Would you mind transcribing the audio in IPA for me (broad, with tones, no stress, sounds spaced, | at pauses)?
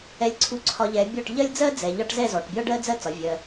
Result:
ɛ˧ lʲ ǀʰ u˧ ǀʰ ɒ˧ ʎ ɛ˨˦ bʲ ɔ˦˨ ʈ ʎ ɜ˦ lʲ d͡z ɜ˦ d͡z ɛ˨ ʎ ɒ˧ ʈ z ɛ˦˨ z ɔ˨ ʈ bʲ ɒ˦ ɖ ɜ˦ d͡z ɜ˦ t͡s ɒ˨˦ vʲ ɜ˧